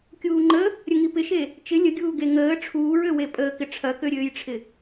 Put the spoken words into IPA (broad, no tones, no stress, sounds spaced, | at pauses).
kʲ uː ŋ͡ǃ ə | ɾʲ ə ŋ i p ɪ ʃ e | t͡ʃ ɪ lʲ ə ɡʲ uː ɡ e ŋ əː ʈ͡ʂʰ uː ɹ ø w e pʼ əː k ɪ ʈ͡ʂʰ ɐ k ø ɾʲ øː j ʈ͡ʂʰ ɪ